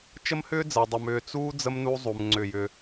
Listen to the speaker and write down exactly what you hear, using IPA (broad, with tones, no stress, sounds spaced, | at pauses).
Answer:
t͡ʃ ə˦ m h ʏː˦ d͡z əː˨ dˤ ɨ˨ m ʏː˨ t͡s uː˦ d͡z ə˦ m n u˦ zˤ u˨ m ŋ͡ǀ ʏ˦˨ j ʏ˦